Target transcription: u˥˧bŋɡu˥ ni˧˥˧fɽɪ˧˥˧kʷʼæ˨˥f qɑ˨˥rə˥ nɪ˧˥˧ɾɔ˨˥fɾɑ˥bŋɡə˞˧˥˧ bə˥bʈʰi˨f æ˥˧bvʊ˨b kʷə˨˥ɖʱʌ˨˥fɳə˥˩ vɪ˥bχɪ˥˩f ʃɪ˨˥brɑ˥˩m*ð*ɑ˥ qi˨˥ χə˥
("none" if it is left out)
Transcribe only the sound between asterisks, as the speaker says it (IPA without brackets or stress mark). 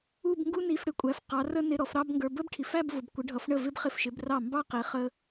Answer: b